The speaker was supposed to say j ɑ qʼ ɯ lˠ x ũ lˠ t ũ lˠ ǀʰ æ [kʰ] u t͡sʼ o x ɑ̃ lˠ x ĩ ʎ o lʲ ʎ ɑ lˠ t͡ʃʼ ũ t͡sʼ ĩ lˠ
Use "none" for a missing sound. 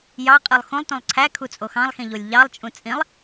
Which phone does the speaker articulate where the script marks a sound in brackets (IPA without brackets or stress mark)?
kʰ